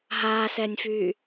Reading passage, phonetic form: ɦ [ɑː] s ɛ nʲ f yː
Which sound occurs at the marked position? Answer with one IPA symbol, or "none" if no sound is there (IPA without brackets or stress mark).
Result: aː